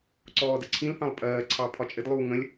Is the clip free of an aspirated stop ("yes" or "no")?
no